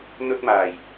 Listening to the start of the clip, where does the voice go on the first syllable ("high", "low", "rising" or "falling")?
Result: high